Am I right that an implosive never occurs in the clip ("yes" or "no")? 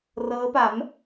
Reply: yes